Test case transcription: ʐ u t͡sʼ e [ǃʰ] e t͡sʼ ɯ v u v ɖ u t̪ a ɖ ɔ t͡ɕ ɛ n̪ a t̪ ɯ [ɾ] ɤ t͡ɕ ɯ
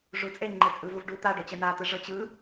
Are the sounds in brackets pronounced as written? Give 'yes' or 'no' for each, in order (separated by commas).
no, no